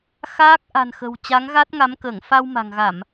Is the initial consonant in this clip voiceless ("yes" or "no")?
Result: yes